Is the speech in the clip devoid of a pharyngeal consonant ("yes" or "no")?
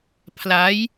yes